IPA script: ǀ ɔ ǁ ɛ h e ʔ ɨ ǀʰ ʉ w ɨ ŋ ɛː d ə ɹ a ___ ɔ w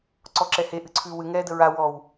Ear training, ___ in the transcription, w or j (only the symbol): w